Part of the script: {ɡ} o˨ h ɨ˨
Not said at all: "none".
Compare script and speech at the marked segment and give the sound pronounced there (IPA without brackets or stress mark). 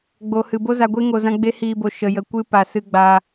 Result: ɡ͡b